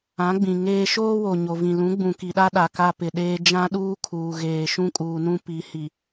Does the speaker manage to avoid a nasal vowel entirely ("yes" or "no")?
no